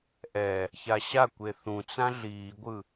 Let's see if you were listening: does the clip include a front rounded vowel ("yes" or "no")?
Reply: no